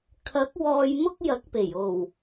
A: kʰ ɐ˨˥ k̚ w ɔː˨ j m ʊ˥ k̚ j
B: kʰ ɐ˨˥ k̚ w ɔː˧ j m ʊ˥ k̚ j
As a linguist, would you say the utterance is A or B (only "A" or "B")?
B